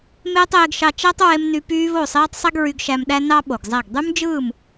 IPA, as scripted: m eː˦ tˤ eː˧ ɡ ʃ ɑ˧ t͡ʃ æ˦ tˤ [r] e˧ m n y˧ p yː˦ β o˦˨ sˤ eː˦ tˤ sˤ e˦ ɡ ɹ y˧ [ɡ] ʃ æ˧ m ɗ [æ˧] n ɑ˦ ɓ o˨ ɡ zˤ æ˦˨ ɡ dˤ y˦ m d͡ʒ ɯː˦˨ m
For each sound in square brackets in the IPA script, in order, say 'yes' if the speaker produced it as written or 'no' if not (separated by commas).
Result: no, yes, no